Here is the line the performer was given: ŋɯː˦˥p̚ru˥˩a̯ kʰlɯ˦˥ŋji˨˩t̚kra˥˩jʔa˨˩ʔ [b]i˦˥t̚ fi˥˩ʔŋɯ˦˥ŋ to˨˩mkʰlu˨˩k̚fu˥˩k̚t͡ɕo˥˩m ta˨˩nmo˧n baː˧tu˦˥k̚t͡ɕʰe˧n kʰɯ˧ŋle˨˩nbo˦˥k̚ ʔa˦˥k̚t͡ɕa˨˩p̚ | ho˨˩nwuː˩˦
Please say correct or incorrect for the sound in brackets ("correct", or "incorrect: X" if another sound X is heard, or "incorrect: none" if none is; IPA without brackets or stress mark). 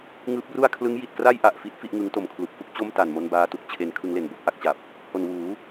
incorrect: f